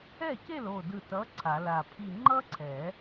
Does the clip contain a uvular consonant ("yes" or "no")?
no